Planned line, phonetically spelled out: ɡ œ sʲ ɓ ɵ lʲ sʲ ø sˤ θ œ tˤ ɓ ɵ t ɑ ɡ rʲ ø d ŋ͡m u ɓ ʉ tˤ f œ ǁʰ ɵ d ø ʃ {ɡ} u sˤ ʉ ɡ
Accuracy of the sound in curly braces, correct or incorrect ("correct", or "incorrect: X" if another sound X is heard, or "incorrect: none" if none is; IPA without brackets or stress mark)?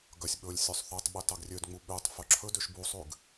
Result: incorrect: b